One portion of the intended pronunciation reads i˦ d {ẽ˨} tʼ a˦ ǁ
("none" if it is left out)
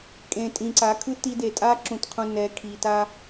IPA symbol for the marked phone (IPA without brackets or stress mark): e˨